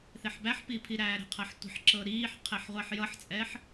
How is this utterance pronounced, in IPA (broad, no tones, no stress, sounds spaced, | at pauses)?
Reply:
θ e ħ b æ ħ p i pʰ i ɾ æː ɾ ə̤ qʰ ɐ ħ tʷ ə̤ ħ ǁ ɤ ɾ iː ħ qʰ e ħ ʁʷ a ħ j ʌ ħ t͡sʼ ɛ ħ